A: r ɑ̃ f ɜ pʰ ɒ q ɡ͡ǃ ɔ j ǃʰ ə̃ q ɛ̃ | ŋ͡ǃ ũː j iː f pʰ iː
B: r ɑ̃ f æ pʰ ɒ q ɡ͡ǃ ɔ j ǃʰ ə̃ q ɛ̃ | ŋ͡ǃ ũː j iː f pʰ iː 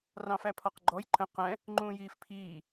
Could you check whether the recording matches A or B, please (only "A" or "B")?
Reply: B